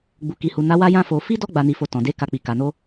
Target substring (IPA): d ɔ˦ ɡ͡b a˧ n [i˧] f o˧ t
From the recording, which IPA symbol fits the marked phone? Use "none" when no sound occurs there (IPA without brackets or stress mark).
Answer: i˧